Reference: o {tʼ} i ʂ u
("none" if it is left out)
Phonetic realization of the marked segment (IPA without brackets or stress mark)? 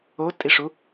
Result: tʼ